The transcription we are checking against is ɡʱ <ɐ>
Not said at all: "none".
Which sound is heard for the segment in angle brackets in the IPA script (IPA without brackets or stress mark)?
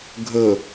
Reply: ə